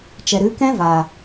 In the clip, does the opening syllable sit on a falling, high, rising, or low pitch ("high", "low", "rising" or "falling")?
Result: low